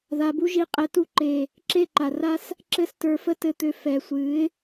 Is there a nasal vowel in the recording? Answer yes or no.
no